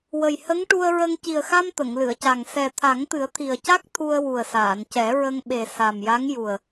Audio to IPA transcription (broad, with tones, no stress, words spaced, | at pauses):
wə˨˩jhə˧˥ŋʈu˧ə̯ɹə˧ŋ ci˨˩ə̯xa˧m t̪ə˨˩˨ŋlɨ˨˩˨ə̯ca˨˩ŋ sɛ˨˩ t̪ʰa˨˩˦ŋt̪ɨ˨˩˦ə̯ t̪ʰi˨˩ə̯ca˦˥k̚ t̪ʰu˧ə̯ wu˨˩ə̯saː˨˩˨ncɛ˨˩˦ɹə˧ŋ ɓe˨˩ sa˨˩mja˧˥ŋ ju˨˩ə̯